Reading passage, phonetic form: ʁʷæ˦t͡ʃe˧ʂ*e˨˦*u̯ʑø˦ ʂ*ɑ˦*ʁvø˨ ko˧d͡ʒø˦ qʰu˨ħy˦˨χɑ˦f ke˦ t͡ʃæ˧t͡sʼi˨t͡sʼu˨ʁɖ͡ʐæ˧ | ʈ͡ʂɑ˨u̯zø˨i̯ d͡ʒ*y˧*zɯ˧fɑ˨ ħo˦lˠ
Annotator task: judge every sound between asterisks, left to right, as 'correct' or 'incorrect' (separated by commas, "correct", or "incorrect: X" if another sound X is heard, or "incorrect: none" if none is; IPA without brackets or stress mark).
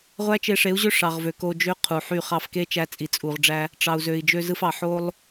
correct, incorrect: ɑ˨, incorrect: ø˧